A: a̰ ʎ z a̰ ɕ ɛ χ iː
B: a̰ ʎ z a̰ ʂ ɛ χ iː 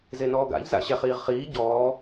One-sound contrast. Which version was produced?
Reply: A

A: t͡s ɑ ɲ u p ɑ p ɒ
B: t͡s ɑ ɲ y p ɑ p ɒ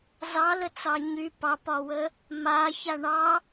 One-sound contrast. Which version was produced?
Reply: B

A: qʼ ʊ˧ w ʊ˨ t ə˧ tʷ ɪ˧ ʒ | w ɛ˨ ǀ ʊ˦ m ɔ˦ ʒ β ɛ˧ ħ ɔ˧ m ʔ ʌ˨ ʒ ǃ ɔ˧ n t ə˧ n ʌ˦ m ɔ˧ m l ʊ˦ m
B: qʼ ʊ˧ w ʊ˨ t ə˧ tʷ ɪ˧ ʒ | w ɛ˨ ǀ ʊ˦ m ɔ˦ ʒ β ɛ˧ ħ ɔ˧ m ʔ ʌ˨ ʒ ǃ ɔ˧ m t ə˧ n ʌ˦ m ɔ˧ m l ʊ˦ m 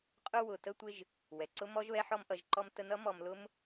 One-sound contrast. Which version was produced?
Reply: B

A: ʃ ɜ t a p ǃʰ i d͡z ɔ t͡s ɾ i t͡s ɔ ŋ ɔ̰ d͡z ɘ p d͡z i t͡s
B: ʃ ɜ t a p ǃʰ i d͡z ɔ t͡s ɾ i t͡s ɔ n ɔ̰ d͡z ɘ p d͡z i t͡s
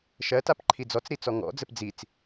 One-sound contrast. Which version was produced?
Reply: A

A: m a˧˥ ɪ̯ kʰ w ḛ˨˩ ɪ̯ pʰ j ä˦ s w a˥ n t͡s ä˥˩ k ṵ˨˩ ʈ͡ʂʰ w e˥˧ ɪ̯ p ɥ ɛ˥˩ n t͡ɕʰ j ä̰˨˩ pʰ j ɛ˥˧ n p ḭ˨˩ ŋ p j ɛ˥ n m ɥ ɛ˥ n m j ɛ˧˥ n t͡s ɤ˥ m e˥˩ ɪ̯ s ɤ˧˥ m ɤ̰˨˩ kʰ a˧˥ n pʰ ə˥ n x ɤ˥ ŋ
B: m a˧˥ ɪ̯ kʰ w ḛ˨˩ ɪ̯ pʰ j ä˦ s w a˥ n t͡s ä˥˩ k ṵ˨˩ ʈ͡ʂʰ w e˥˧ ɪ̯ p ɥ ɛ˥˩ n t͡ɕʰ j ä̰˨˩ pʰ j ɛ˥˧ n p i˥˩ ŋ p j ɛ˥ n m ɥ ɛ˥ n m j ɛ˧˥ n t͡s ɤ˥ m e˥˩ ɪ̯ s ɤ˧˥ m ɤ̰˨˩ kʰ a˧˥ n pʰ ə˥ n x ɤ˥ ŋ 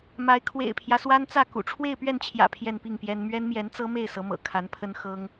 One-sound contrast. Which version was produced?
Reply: B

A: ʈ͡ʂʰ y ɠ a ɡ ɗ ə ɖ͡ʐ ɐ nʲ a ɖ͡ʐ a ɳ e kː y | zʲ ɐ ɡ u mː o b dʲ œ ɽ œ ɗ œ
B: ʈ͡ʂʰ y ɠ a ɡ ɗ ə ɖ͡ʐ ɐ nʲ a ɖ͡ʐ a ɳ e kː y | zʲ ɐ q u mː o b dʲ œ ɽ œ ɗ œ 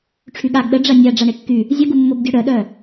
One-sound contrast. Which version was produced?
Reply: A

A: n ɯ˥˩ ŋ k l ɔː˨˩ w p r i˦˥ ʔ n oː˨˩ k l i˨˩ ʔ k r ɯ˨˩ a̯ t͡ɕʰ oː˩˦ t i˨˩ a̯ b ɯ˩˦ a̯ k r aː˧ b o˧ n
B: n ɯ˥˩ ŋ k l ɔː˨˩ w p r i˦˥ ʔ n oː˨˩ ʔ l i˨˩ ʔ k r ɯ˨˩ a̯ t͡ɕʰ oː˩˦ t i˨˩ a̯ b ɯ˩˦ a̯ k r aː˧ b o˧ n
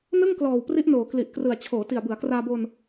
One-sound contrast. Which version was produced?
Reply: A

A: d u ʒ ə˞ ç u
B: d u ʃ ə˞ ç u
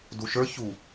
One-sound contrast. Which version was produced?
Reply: B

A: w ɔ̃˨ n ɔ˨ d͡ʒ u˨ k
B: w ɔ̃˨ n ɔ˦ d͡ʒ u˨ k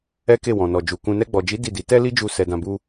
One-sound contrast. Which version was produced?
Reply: A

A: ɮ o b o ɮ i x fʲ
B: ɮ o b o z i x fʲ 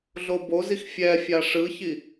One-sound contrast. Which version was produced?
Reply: B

